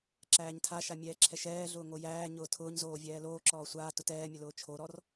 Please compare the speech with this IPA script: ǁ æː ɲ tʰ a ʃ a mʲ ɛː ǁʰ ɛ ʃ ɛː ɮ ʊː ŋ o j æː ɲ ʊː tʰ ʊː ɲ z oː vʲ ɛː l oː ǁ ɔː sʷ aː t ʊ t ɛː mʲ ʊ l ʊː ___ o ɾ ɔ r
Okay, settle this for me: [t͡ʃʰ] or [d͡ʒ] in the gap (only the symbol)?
t͡ʃʰ